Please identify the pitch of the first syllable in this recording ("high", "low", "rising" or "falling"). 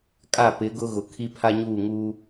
falling